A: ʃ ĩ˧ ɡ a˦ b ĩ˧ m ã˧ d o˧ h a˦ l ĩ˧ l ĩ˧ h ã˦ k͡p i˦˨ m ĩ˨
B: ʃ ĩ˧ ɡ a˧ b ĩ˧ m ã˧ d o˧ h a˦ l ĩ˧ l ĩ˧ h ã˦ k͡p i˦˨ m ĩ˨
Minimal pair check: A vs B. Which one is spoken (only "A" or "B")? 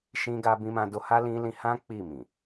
B